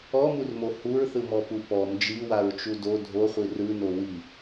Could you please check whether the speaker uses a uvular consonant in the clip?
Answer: yes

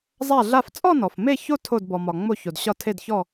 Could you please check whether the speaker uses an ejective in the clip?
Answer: yes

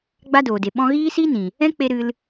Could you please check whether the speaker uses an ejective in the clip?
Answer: no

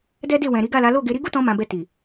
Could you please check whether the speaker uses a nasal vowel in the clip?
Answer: yes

